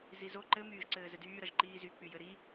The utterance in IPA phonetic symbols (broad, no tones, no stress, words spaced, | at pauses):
zizo ǃɘ myːʒǀɘːzɘdyː ɾʌʒǃiːzy k͡pyjɘɾi